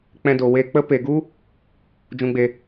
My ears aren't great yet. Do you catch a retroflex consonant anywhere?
no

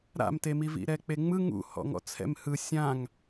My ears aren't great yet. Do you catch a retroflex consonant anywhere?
no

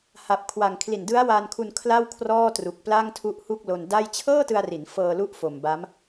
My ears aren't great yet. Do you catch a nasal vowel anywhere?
no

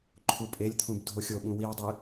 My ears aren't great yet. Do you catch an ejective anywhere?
yes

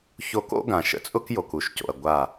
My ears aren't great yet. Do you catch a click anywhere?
no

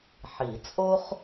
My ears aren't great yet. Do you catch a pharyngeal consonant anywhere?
yes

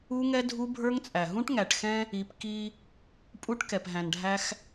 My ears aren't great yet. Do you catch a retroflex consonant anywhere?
yes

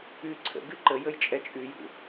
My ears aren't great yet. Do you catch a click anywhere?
yes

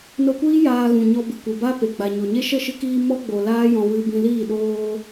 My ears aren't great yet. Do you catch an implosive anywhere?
yes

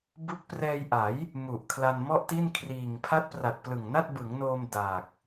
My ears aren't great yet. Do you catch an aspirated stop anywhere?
yes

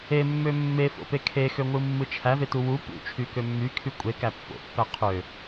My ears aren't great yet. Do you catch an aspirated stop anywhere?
yes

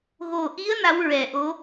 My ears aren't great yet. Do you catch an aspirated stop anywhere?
no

